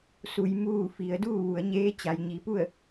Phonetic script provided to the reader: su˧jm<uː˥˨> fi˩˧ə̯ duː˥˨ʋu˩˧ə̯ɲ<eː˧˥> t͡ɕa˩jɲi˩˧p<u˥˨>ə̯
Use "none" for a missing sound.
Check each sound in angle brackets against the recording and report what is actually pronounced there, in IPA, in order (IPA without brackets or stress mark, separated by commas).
uː˥˨, eː˧˥, u˥˨